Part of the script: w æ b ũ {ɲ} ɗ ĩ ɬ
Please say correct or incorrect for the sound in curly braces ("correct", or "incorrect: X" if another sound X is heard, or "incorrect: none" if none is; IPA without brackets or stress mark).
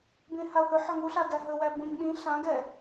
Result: correct